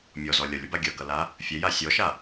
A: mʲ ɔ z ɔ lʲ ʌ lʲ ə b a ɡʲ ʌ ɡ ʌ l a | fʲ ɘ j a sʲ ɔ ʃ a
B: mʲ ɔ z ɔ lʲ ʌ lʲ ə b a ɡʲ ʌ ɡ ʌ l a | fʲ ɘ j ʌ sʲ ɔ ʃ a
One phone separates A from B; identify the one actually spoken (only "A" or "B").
A